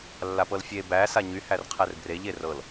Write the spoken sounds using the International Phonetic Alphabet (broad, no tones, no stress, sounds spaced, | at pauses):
lː a p ɤ l fʲ e b æ s a ɲ y h æ r qʰ ɛ r b r e ʎ e r ɤ l